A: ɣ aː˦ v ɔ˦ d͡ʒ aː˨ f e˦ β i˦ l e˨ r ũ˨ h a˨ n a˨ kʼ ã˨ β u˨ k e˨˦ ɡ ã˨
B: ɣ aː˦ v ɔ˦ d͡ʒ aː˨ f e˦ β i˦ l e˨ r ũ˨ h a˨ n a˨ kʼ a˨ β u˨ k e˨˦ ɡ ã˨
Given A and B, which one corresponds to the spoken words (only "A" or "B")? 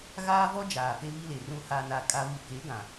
B